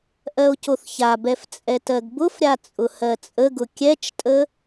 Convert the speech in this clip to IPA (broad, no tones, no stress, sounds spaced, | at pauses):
ʔ ɜ o̯ c o θ ç a b ɛ f t͡sʼ ɛ t ɜ ɡ b ʊ f ɾʲ a t͡sʼ ʊ h ɜ t͡sʼ ə ɡ ʊ kʲ ɛ t͡ʃ tʼ ə